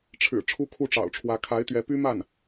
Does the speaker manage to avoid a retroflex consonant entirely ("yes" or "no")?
no